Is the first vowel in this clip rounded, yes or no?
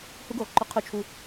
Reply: yes